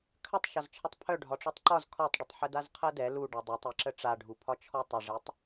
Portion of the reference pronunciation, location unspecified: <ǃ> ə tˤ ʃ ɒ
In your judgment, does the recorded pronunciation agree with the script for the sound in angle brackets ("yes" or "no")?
no